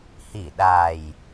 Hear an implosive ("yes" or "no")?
yes